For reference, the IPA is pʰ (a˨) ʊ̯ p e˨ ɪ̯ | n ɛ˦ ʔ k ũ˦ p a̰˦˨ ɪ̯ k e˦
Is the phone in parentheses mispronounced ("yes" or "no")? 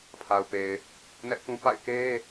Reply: no